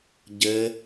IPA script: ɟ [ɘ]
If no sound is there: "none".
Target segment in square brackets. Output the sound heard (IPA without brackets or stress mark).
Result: ɘ